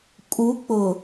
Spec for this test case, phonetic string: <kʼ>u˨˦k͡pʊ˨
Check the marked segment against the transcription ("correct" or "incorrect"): correct